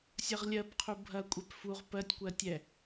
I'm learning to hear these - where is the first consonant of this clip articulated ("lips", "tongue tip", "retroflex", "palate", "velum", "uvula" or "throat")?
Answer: tongue tip